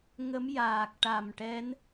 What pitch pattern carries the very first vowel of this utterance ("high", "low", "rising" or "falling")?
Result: rising